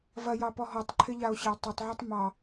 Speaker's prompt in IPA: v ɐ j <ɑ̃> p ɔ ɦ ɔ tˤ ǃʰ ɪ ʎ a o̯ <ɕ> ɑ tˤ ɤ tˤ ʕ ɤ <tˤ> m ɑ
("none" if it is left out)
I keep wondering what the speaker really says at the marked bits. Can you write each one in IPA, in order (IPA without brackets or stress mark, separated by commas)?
ɑ, ɕ, tˤ